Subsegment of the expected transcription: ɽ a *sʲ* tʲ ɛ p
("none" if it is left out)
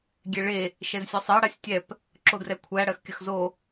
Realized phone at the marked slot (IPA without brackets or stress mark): sʲ